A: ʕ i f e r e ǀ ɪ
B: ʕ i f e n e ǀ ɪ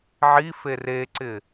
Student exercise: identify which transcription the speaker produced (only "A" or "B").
A